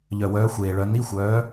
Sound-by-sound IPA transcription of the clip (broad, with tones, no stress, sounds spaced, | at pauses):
ʎ œ˨˩ w œː˨˥ xʷ eː˨˩ ɭ œ˨˥ n i˧˥˧ xʷ œː˨˥